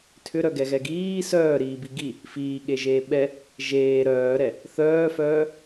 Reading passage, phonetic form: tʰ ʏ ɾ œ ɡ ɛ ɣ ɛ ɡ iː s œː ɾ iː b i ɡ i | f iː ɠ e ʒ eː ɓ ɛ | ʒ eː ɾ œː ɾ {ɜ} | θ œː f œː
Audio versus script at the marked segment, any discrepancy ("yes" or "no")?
yes